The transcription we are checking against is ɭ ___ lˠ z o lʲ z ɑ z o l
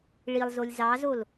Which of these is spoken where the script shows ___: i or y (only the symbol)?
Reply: i